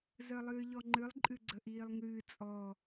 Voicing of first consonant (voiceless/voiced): voiced